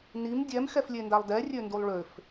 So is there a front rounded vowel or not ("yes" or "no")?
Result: yes